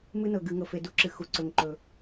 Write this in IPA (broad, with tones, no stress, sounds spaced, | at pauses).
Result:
m ɨ˦ n ɤ˨ ɡ ɨ˨ ŋ ɤ˨ f e˨ d u˦ ǁ ɨ˨ x u˨ ǀ ɵ˨ ŋ ǃ ɵ˨